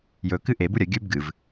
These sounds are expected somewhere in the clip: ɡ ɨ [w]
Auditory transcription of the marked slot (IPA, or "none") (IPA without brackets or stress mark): v